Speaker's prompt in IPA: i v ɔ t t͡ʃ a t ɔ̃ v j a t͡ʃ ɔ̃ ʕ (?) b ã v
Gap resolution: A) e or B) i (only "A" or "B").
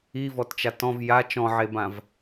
A